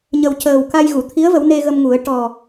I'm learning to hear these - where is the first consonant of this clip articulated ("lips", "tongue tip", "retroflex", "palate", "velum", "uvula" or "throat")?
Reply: palate